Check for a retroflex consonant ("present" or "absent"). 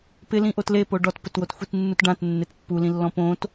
present